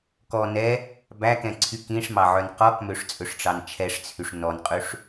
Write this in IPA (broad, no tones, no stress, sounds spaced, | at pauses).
k ɔ n ɛ | b æ k ɛ̃ ǀʰ y k ĩ ʂ m ɑ ʕ œ n q ɔ k m ø ʂ t͡sʼ ɵ ʂ ʈ͡ʂ ɑ n t͡ʃʰ ɛ ʂ t͡sʰ y ʂ n ɔ n qʼ ʉ ʂ